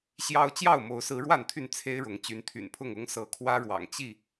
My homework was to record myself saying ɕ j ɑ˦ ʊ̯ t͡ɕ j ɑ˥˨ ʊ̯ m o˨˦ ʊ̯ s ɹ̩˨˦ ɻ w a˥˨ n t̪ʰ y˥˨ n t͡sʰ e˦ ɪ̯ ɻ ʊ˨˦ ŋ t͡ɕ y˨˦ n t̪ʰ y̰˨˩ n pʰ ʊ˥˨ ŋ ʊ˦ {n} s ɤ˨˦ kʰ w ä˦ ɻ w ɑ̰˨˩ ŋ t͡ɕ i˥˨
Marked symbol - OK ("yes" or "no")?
no